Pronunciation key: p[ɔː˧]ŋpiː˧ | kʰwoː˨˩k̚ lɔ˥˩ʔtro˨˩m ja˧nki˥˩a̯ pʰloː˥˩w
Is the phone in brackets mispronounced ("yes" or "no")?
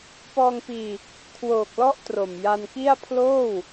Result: no